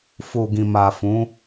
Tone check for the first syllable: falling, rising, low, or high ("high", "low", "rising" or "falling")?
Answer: low